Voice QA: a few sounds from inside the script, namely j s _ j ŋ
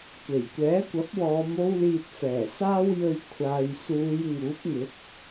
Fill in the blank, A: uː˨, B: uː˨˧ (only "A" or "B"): B